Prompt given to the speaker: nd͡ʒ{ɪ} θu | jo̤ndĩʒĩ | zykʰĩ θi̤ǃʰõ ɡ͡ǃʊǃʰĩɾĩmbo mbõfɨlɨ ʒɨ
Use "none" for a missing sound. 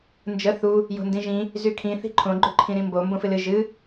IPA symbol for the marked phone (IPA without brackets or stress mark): ə